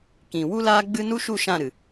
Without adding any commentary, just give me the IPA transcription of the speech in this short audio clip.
k ĩ˨ w u˦ l aː˦ ɡ͡b ɨ˦ n u˦ ʃ u˦˨ ʃ ã˦˨ ɾ ɨ˨

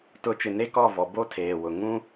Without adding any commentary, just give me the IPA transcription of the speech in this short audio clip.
t ʊ˨˦ t͡ʃ ɪ˨ n e˦ k ɔ˦˨ v ɔ˨ b o˦ tʰ eː˨ w ʊ˨ ŋ ũ˦

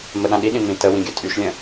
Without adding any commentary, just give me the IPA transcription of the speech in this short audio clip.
m ə ɗ ã ɗ i ɗ ĩ m ĩ t ə w ĩ ɡʲ œ tʼ y ʃ lʲ ə̃

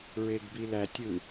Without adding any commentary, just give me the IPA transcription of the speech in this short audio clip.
ɹ e ɡ b i l æ tʲ ɯ

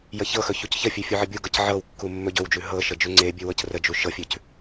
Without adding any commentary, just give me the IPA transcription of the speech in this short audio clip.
j ə ç ɤ x ɵ ç u c ç ə fʲ ʉ fʲ u ʕ ə bʲ u ɡ ɤ c ʕ ɤ w kː u mː ɵ ɟ ɵ w d͡ʒ ʉ ɦ ɤ ʃ ə d͡ʒ ʉ ŋ͡ǀ e bʲ ʉ w ɤ c r ə d͡ʒ u ʃ ɤ fʲ ʉ c

